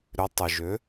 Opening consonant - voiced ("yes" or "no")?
yes